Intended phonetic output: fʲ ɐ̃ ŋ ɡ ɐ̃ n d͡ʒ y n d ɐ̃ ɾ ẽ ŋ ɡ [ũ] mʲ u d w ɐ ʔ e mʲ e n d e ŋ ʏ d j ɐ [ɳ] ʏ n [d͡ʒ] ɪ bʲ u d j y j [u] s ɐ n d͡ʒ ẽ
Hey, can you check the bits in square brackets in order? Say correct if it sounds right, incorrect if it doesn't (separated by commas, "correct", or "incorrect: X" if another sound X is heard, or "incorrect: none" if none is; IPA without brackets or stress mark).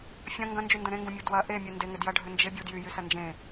correct, incorrect: ɖʱ, correct, incorrect: y